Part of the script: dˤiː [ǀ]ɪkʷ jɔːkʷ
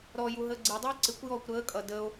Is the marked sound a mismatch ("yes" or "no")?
no